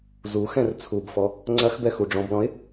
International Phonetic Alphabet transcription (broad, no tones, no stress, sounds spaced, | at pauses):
z u x ɛ̃ r t͡sʰ u b f ɔ | ŋ͡ǀ ɐ x b ɛ x u ɖ͡ʐ ɔ̃ b l ɔ̃ ɪ̯